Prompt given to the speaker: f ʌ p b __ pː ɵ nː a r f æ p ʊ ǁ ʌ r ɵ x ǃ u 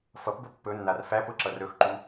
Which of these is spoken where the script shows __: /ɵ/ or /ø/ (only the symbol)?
ɵ